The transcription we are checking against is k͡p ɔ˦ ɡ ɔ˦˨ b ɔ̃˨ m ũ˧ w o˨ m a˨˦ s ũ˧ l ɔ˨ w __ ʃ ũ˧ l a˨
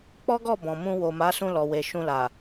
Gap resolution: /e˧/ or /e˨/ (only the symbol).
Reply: e˨